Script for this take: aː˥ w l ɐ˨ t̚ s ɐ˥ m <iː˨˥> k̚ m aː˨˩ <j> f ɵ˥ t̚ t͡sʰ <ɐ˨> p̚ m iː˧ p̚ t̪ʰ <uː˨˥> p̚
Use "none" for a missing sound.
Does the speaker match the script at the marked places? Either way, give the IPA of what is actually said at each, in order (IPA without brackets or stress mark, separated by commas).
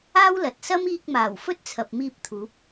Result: iː˧, w, ɐ˨, uː˨˥